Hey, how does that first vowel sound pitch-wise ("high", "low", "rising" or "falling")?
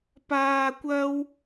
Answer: low